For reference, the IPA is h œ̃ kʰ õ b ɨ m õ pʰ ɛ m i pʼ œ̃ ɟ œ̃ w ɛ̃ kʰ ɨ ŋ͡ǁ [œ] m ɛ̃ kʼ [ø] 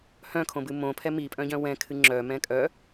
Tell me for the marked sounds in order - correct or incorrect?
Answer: correct, incorrect

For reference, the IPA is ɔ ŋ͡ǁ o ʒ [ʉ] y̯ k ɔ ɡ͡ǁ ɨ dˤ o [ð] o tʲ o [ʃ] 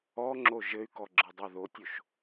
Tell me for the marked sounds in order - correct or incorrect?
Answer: incorrect, correct, correct

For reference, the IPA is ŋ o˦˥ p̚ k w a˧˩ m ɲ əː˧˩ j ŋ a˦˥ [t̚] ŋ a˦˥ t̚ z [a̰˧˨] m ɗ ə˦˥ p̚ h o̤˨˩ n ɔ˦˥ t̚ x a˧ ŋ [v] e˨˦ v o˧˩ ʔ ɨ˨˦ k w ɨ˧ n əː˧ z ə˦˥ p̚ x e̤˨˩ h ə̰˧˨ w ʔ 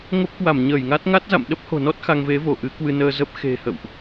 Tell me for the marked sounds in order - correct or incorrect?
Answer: correct, correct, correct

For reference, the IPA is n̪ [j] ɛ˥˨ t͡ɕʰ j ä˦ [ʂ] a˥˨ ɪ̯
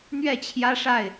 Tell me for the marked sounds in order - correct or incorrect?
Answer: incorrect, correct

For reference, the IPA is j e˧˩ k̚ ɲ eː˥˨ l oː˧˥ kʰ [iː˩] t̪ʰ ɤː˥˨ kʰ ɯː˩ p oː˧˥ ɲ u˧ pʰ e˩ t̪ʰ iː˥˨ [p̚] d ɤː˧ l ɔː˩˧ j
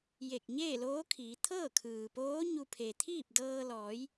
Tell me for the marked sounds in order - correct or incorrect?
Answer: incorrect, correct

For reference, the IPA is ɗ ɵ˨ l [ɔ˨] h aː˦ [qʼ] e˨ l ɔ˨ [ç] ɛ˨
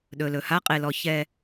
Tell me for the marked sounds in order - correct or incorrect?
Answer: incorrect, correct, correct

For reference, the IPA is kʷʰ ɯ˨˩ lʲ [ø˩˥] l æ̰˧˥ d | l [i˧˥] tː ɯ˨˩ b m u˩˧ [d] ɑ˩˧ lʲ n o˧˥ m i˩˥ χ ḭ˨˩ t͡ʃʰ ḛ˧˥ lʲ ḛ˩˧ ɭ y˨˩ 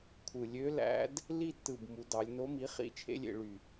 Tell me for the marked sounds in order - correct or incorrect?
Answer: incorrect, incorrect, correct

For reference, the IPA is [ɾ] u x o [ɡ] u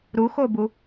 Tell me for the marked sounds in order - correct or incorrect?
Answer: correct, incorrect

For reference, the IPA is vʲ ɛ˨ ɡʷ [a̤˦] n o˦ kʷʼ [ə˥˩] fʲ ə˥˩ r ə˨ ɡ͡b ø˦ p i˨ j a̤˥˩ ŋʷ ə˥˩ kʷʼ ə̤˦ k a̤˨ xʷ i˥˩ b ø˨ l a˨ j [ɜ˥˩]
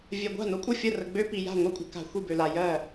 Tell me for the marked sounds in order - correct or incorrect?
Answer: incorrect, correct, correct

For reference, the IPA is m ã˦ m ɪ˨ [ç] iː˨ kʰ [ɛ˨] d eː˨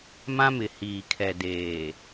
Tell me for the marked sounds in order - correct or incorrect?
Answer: incorrect, correct

